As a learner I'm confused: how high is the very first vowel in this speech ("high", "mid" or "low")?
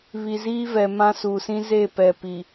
high